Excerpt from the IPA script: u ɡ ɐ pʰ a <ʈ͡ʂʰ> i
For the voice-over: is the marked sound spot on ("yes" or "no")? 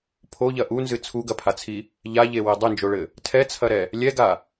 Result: no